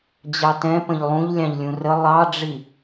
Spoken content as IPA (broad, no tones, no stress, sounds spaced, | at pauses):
d͡ʑ ɑ t ɛ̃ p ə̃ ʎ lˠ ũ ʎ lʲ ɑ̃ ʎ lʲ ũ r ə lˠ ɑ ɖ͡ʐ i